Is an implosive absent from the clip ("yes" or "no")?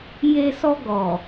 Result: yes